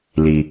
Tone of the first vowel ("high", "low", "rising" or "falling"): low